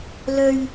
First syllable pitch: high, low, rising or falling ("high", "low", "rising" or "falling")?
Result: low